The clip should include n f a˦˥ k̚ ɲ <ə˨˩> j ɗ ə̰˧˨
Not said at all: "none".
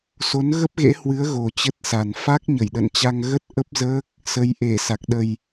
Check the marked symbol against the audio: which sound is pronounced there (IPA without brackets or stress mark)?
ə˧˩